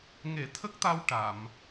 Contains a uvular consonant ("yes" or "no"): no